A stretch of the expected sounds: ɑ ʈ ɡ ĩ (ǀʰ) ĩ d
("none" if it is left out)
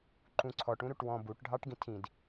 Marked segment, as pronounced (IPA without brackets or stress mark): tʰ